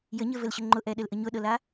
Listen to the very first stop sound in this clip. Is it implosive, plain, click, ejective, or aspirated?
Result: click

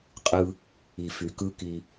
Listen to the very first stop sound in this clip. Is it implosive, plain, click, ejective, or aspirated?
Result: ejective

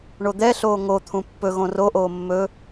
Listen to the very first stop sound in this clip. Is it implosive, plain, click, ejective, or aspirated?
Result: plain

